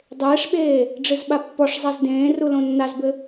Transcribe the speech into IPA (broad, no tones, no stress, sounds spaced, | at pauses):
dˤ eː ʂ ɓ eː | ɖ͡ʐ ɨ z ɓ a pː ɔ ʂ zˤ a z d ẽː r u l õ nː a z b ɘ